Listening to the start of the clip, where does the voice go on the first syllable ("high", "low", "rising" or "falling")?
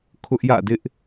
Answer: high